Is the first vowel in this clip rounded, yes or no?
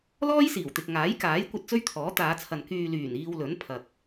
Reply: yes